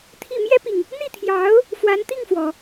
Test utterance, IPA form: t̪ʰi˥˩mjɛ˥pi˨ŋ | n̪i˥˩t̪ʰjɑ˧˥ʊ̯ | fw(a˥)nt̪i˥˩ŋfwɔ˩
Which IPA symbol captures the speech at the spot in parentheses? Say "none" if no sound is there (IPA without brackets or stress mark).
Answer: a˧˥